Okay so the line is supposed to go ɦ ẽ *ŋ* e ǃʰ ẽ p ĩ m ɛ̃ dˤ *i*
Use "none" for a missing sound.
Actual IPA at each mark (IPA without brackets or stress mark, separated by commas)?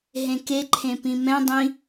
k, ĩ